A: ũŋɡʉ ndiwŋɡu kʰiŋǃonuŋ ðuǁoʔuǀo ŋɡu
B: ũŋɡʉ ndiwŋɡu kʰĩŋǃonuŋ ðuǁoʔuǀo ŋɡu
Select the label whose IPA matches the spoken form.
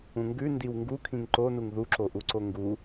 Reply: B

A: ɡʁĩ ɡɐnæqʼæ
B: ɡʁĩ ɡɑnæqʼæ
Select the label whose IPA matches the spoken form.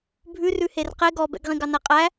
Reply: B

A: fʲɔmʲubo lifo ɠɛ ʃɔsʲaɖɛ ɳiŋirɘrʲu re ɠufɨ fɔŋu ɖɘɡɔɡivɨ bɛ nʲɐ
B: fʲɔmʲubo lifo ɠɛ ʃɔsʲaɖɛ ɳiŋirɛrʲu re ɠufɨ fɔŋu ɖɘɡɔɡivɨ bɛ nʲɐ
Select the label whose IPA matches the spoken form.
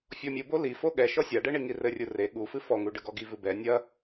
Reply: A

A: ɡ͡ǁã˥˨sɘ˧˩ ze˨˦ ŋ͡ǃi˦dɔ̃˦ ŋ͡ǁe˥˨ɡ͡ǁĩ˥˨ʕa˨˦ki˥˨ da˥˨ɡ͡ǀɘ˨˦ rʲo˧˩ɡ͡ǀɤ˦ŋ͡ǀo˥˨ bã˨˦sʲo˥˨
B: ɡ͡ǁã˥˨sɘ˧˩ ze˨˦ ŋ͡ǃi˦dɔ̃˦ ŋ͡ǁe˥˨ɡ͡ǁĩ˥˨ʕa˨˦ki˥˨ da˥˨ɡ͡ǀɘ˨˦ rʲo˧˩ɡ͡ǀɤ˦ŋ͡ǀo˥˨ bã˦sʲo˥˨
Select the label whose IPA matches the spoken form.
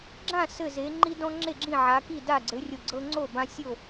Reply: B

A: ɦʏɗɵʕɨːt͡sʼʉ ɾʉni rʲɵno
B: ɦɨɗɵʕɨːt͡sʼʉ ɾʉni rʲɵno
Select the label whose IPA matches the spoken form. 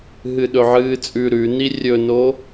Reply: B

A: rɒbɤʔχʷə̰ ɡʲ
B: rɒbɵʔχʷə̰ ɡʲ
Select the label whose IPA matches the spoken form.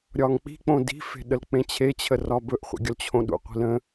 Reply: B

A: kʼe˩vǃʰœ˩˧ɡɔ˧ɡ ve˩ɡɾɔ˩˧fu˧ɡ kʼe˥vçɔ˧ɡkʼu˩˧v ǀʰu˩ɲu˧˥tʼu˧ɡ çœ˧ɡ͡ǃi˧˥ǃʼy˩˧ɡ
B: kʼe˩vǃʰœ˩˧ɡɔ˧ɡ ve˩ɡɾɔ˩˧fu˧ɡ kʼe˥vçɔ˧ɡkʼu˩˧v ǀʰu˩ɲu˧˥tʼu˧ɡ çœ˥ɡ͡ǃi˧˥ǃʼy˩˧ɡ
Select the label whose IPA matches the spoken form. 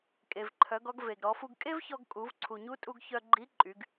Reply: A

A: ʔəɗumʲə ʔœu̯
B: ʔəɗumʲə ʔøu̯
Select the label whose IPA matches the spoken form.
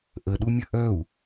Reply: A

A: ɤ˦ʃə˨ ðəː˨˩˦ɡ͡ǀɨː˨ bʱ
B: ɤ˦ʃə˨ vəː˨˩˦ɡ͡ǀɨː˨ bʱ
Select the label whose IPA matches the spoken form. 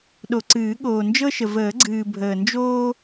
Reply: B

